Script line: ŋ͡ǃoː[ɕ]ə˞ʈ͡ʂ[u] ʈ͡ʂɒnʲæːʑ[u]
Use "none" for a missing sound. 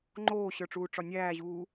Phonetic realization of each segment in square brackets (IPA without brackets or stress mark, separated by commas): ɕ, uː, uː